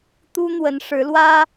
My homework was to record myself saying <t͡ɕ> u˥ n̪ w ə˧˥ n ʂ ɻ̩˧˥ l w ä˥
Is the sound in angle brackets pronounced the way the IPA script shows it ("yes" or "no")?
no